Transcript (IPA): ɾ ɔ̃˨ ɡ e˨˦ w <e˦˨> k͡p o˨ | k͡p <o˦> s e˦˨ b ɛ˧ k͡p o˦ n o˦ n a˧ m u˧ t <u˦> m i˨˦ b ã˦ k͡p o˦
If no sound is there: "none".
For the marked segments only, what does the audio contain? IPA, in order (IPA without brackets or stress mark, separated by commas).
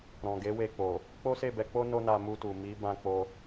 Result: e˧, o˦, u˨